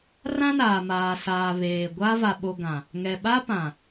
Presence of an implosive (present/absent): present